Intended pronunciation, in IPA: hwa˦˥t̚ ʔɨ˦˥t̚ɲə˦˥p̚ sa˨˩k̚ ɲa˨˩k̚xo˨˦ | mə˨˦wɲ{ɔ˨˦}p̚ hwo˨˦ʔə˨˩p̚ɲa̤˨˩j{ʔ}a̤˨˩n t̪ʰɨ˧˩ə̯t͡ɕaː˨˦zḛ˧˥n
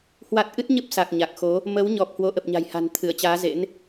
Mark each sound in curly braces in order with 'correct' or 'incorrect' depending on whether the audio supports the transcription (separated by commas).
incorrect, incorrect